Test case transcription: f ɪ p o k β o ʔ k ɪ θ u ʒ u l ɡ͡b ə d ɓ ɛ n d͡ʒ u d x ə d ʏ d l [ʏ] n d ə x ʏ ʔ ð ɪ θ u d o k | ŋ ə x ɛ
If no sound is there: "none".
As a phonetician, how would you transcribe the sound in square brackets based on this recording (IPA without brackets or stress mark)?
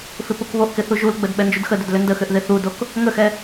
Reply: ʏ